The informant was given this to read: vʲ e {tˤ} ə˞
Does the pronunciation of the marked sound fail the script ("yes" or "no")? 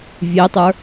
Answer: no